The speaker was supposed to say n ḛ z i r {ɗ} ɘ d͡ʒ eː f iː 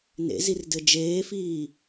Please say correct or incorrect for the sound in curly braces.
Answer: incorrect